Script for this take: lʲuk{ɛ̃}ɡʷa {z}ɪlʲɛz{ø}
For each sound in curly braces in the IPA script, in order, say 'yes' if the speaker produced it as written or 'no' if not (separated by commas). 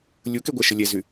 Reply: no, no, no